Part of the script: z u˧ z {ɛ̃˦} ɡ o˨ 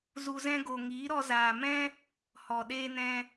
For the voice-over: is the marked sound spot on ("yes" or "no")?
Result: yes